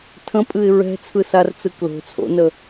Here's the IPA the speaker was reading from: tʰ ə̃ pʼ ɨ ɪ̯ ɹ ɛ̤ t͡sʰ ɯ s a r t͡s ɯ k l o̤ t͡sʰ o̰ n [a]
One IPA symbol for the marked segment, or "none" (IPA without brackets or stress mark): ə